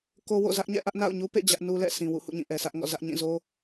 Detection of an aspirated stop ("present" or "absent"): absent